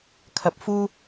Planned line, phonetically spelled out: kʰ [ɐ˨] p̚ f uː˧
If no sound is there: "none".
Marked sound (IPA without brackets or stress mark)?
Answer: ɐ˨